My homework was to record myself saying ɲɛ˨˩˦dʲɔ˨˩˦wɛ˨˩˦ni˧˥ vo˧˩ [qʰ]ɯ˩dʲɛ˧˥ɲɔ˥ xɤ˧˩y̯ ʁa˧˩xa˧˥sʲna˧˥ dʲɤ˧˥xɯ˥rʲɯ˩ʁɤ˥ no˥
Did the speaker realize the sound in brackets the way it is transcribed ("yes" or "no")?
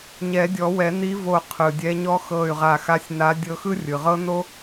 yes